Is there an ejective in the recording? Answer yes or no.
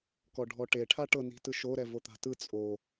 yes